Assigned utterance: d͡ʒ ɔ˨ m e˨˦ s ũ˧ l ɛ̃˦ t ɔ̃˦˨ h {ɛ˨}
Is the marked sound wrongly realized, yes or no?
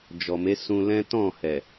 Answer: no